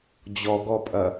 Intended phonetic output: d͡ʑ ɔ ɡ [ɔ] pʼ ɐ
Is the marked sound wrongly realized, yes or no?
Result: no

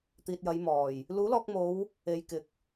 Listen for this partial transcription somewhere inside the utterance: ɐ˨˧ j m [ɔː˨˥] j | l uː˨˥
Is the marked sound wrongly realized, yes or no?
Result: yes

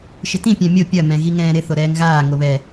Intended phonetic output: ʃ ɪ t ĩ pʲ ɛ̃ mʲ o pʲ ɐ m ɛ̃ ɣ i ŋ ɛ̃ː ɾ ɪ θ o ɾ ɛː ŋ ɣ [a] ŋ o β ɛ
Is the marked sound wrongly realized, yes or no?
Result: yes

